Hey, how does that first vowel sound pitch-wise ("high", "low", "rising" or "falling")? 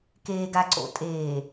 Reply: low